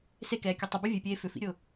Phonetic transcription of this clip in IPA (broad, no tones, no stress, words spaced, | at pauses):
sekɛːkʲʊ tˤʏbɛ vʲepʲeː fʏfḭɾʲʊː